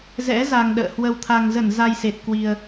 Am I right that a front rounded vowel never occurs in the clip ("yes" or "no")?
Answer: yes